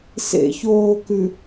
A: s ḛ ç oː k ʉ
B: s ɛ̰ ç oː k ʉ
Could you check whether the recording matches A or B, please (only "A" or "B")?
A